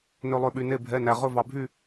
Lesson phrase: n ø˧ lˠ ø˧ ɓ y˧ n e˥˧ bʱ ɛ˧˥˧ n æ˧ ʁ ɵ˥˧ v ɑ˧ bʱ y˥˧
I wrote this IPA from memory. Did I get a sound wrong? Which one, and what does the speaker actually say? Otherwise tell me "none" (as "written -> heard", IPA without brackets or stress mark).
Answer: none